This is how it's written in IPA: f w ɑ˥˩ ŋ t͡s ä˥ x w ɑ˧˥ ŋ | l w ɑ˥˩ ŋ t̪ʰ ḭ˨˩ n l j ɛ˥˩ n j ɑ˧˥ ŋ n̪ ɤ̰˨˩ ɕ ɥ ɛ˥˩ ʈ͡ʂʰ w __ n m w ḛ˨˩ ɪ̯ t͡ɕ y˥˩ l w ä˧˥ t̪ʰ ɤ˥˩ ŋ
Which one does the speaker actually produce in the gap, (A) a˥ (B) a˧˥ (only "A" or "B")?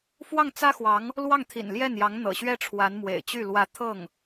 B